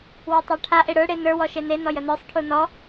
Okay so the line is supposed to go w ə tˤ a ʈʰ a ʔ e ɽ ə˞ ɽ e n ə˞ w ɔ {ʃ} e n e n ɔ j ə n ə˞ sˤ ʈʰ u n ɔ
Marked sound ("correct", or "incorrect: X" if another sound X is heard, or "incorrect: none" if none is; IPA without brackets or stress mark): correct